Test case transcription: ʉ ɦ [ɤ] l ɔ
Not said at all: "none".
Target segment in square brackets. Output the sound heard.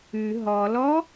ɔ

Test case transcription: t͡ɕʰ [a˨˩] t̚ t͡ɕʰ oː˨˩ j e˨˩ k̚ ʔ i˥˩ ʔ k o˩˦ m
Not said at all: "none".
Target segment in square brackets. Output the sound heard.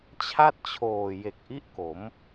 a˥˩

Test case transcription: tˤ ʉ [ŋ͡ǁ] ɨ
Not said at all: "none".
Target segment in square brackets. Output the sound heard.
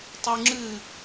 ŋ͡ǁ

